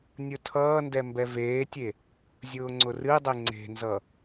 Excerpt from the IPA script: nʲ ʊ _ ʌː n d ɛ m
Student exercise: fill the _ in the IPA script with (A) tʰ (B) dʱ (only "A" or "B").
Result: A